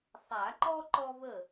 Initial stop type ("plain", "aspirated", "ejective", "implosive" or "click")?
click